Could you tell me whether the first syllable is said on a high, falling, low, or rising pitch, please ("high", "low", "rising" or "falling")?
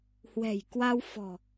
low